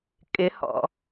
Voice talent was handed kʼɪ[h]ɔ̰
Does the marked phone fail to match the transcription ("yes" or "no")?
no